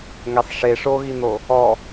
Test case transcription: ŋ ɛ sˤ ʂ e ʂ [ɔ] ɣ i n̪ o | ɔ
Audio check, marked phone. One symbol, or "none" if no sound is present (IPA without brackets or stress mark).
o